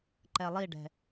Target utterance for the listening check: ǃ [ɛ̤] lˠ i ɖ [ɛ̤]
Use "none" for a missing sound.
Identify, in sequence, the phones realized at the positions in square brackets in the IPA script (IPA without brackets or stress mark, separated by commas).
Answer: ɛ, ɛ̤